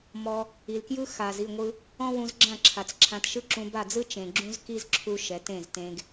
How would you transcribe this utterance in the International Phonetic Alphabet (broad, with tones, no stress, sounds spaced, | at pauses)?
m ɔ˧ | i˨ l k j ɯ˦ x a˨ z i˦˨ ŋʷ ɯ˧ | ɔ̃˦ w ũ˧ z ɡ͡ǁ ã˦˨ ǁʰ a˨ t͡s ǁʰ ã˧ t ʃ ɯ˦ ǁ ũ˧ b a˦˨ d͡z ɯ˦ t͡ʃ ẽ˨ ɡ͡ǁ ũ˦ z k i˦ z ǁʰ u˦ ʃ ɛ˨˦ t ẽ˦˨ z t ẽ˧ ɡ